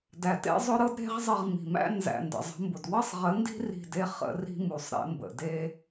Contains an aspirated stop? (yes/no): no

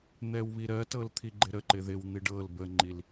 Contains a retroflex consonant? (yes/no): yes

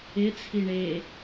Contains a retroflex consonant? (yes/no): yes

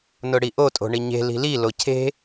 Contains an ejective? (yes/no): yes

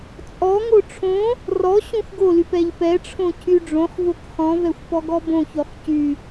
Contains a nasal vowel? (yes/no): yes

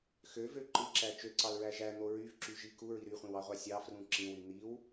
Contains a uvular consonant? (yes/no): yes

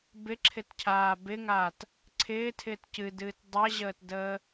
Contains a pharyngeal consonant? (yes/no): no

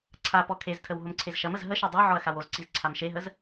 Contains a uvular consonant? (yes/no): no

